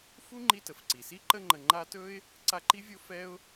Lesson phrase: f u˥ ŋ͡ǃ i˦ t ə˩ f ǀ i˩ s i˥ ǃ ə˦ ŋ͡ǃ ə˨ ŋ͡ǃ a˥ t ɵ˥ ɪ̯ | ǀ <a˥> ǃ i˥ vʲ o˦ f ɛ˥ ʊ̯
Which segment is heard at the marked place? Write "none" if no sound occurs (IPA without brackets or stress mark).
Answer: a˦